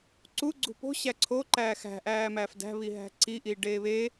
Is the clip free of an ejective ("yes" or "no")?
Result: yes